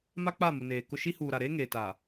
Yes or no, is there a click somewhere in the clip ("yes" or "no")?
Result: no